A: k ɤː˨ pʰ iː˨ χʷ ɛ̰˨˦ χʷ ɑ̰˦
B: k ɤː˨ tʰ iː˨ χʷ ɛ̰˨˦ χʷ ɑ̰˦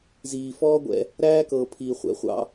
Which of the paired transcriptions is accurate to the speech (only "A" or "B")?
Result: A